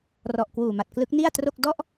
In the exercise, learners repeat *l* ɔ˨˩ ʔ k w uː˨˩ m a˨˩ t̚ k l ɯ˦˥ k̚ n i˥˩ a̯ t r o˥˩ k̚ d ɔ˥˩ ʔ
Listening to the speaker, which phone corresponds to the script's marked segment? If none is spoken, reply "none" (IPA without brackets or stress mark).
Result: r